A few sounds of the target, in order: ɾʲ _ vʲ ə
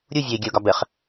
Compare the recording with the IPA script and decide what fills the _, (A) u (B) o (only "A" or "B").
A